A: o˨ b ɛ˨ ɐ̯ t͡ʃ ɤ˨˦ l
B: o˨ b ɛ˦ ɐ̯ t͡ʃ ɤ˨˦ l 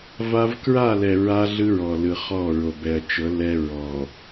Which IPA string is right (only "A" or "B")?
A